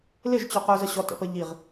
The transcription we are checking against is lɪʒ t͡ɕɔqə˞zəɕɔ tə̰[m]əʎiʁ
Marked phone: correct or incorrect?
incorrect